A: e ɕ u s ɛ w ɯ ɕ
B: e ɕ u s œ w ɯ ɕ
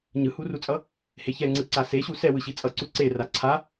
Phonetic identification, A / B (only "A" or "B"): A